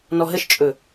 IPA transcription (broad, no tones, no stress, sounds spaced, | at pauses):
n ɔ ɦ ə ʃ t͡ʃʼ ɵ